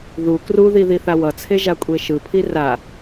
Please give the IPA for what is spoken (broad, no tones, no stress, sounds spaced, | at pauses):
ð u k r u ð i ð i θ a w ʌ t͡sʰ e ʒ a kʷʼ e ʃ ɯ pʰ i r a